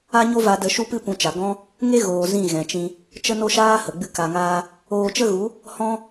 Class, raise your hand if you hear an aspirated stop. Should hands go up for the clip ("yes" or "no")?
no